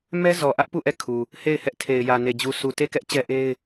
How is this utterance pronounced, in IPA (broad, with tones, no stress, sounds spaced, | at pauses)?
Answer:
m ɛ˦ z ɔ˨ ʔ ä˦ ʔ p u˦˨ ʔ ɛ˦˨ kʰ u˨ | h e˦˨ ɪ̯ h ɛ˦ ʔ tʰ e˨ ɪ̯ j ä˨ n e˨ d͡ʑ u˨ sʰ u˨ t e˦˨ k ɛ˦ ʔ t͡ɕ ɛ˦ ʔ e˦ ɪ̯